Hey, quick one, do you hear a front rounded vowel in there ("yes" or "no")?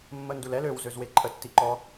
yes